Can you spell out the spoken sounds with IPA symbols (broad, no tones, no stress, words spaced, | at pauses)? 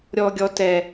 ɾʲɔ ɡʲɔ tɛ